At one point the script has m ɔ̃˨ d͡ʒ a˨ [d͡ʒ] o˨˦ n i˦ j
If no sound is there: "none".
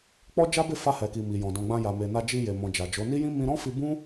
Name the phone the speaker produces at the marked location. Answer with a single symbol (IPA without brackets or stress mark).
d͡ʒ